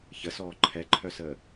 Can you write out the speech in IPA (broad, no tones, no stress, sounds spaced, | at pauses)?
ç ə s ɔː ǃʰ ɛ ǃʰ œ s əː